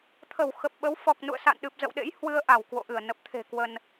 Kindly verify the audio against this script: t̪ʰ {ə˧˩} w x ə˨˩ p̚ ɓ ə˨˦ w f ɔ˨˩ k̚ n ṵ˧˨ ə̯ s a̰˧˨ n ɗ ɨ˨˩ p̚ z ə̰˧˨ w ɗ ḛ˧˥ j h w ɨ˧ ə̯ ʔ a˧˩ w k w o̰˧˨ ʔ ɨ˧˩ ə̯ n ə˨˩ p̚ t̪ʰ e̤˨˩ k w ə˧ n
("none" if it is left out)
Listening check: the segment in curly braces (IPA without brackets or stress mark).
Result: ə˧˩